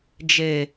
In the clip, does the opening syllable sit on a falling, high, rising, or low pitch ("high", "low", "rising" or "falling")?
low